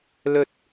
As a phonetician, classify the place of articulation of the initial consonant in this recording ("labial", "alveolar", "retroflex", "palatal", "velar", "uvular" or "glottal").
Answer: alveolar